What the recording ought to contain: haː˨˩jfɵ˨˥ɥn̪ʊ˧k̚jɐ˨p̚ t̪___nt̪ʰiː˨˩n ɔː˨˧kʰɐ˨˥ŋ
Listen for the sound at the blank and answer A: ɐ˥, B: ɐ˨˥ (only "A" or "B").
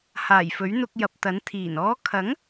B